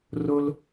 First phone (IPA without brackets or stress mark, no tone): r